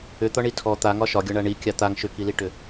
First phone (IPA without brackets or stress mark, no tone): ʏ